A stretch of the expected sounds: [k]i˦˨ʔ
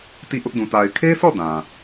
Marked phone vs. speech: incorrect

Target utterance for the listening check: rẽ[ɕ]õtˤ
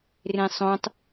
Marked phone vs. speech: incorrect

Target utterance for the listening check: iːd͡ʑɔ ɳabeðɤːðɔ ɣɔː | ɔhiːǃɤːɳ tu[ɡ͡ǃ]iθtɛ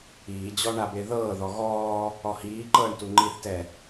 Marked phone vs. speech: incorrect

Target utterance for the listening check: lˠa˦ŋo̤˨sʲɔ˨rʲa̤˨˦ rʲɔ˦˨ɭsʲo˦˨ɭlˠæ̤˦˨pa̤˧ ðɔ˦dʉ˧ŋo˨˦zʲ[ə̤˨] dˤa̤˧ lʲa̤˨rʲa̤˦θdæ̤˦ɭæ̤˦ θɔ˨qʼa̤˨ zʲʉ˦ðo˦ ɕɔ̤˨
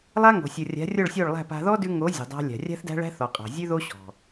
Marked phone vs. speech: correct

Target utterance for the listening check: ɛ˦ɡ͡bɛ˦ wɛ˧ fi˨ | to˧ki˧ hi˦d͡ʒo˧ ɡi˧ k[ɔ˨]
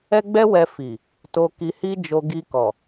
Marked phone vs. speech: correct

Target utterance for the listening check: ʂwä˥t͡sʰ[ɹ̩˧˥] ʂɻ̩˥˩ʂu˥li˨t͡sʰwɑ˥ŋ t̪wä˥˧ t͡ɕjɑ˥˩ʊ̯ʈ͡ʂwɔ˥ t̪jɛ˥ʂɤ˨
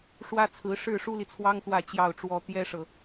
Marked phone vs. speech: correct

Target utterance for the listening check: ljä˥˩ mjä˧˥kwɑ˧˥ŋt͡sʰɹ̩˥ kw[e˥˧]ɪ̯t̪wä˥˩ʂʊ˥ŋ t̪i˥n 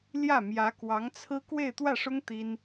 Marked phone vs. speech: correct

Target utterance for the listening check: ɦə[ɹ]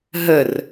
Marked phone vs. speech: incorrect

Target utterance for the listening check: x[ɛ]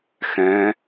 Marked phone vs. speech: incorrect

